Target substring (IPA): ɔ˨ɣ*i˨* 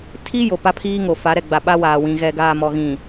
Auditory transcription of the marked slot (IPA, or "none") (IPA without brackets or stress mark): ĩ˨